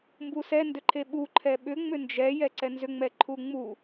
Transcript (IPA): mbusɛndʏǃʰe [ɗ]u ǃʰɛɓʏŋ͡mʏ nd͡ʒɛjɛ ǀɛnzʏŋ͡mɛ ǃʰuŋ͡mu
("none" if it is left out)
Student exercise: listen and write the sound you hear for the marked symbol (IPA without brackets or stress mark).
ɓ